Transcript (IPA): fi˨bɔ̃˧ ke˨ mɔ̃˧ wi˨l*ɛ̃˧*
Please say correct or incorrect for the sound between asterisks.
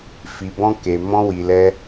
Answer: incorrect